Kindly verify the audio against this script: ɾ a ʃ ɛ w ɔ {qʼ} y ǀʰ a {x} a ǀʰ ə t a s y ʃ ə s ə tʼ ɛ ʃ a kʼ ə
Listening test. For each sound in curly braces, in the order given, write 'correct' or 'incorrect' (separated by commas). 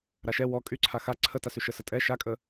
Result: incorrect, correct